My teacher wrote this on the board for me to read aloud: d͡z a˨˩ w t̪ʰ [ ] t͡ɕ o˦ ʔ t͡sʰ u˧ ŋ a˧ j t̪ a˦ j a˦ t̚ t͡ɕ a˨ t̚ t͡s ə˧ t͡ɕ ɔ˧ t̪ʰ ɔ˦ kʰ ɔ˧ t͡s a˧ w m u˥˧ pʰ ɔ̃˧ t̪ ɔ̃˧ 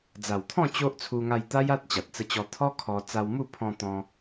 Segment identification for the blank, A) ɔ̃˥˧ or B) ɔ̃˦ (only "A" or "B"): A